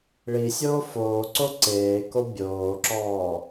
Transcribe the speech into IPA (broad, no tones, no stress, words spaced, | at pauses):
ɭisʲoː foːǀo ǀeː kobʲoːǁɔː